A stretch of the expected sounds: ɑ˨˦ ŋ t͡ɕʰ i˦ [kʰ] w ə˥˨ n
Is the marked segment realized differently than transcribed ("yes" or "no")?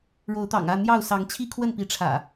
no